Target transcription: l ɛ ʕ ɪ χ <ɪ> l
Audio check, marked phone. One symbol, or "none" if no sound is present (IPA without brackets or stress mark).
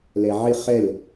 ɛ